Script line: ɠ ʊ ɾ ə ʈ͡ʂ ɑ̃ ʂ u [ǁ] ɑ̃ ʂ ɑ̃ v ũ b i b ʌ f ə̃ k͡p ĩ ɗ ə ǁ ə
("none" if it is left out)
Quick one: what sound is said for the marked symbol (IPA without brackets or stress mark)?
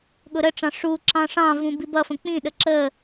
ǁ